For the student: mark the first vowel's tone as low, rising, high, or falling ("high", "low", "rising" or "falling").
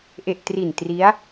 low